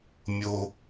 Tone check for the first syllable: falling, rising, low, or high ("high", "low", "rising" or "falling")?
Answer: high